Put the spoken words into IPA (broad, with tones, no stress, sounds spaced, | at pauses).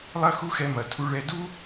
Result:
lˠ ɐ˦ x u˦ x ɛ˧ m ɐ˨ tʰ u˧ ɭ ɛ˧ d u˦